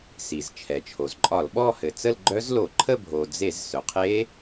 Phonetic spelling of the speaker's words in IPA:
s i˩ z t͡ʃʰ ɛ˩ t͡ʃʰ o˩ z ǃʼ ɒ˧˩˧ l ɓ ɔ˥˧ h ɘ˩ t͡s ə˥˧ l ɡ͡ǃ œ˦˥ z l o˧˩˧ ǃʰ ə˥˧ bʱ o˩ d͡z e˧˩˧ z s œ˩ qʰ e˦˥

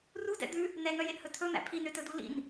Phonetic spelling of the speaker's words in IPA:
r u d ɛ̰ d̪ ʉ | n ɛ ŋ œ j e ʔ h ɵ tʰ ɵ n̪ æ̰ pʰ i n ø t ɵ d u l ḭ n

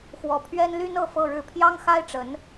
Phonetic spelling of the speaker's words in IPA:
x w ɔ˧˥ pʰ ɥ ɛ˥ n l y˥ n ɤ˥˧ f ɤ˥˧ ɻ ɻ̩˥˩ pʰ j ɑ˥ ŋ x a˥ ɪ̯ ʈ͡ʂ ə˧˥ n

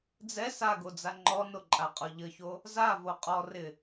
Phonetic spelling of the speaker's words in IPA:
d͡z ɛ s a ɡ o d͡z a ŋ͡ǃ ɔ n o ǃʼ a qʼ ɔ ʎ ə ç o | z a v o qʼ ɔ r ɪ

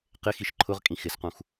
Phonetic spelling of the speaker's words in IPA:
q ɪ x i ʃ ǃʰ ʊ ʁ kʼ ĩ x ɪ s q ũ x

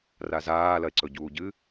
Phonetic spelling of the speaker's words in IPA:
r a z aː l ɐ e̯ ǀ ɵ ɟ uː ɟ ɨ

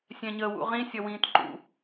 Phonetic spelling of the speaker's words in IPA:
sʲ ɛ̃ ɲ əː w ṵ ʁ ĩ sʲ ʌ w ĩː t ǃ ṵ

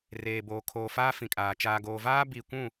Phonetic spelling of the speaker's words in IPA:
r eː˨ b oː˨ kʰ oː˨ f aː˦ f ĩ˨ kʼ aː˨ t͡ʃ aː˨ ɡ oː˨ v aː˦ b i˦˨ kʷ ũ˦˨

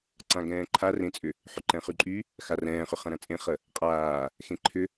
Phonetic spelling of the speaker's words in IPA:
ǀ ã ɡ ɛ̃ː ǃʰ a r ẽ t͡sʼ ʏ | ħ ʏ ǃ ɛ̃ χ y ǃʼ y | x a r ɛ̃ː χ ʏ χ ɐ̃ ɾ ɐ̃ t͡sʼ ẽ χ ə | qʼ aː | x ẽ ǃʰ ʏ

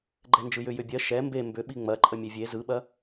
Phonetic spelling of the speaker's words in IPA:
ɡ͡ǃ ɛ n d͡ʒ ɯ j ʏ j ʏ bʲ ɜ ʃ ɛ m b e m b ʏ ɓ i ŋ͡m ɐ ǃʼ ə mʲ e vʲ e z ɯ ɓ ɐ

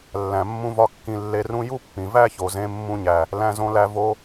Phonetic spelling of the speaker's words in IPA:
lː æ̃˨ mː ũ˧ v ɒ˧ kː ĩ˧ lː e˧ r ũ˦ j u˦ pː ĩ˨ v æ˦ ç o˨ z ẽ˧ mː ũ˧ ɲ æ˨ | l æ̃˧ z õ˧ l æ˧ v o˧

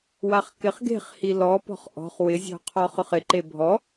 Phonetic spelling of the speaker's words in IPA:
w a χ k ɪ χ ɡ e̤ χ h i l ɔ p ɔ̤ χ ʔ ɔ̤ χ w ɪ zʲ ɔ̤ qʰ ɔ χ ʊ χ ɪ ǃ e bʱ ɔ

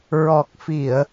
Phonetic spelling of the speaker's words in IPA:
ɹ ɔ˨˩ k̚ f i˨˩˨ ə̯

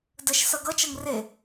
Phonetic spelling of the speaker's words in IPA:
d ə ʃ s ʌ ɡ ʌ t͡ʃ ʌ ŋ r e

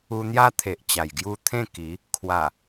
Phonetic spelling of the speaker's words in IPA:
u˧ n̪ j a˦ t̪ʰ e˨ ʔ t͡ɕ a˨˩ j ɡ j u˥˧ t̪ʰ ẽ˥˧ k i˨˦ | kʰ w a˨˩

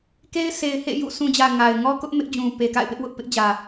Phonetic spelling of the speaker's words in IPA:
k e˦ ɪ̯ sʰ e˨ ɪ̯ h ḛ˦˨ j ṵ˦˨ sʰ ũ˨ d͡ʑ ä˨ ŋ a˨ ɪ̯ ŋ ɔ˦ k ʊ˦ ʔ m ɪ˦ ʔ d͡ʑ ũ˨ p e˨ k a̰˦˨ ɪ̯ p ɪ˦ ʔ w ʊ˦ ʔ p ɪ˦ ʔ d͡ʑ ä˨

